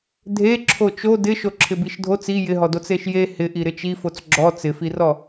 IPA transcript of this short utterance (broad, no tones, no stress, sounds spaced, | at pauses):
dʱ e ǁʰ o t͡ʃ o d ɪ ʃ o ǁʰ ɪ b i ʃ dʱ o t͡s i j ɪ ɦ ɔ d o t͡s e ʃ j e h ɪ ʔ i ɾ ɪ t͡ʃ i f o t͡s ɡ͡ǁ ɔ t͡s ɪ f i r ɔ